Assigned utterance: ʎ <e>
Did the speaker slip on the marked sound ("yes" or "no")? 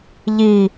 yes